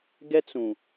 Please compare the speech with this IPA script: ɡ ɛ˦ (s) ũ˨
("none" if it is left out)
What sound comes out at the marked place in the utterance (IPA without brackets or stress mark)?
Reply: t͡s